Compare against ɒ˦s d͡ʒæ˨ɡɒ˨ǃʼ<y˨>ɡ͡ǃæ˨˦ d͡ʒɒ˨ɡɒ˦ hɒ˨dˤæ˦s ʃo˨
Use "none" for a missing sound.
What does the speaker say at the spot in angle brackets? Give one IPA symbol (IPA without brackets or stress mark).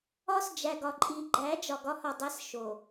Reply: i˨